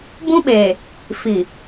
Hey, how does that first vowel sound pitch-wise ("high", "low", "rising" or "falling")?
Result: high